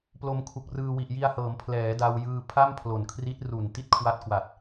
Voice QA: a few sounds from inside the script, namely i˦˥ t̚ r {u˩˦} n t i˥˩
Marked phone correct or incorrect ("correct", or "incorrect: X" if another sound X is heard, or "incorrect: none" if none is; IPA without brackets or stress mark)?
incorrect: u˨˩